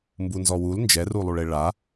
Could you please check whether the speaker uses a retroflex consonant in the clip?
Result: yes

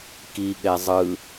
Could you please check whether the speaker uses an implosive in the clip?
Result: yes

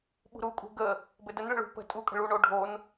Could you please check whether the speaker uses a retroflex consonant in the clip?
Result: yes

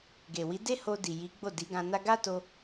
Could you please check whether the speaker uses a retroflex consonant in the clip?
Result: no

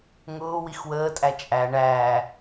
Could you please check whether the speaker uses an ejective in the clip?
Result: yes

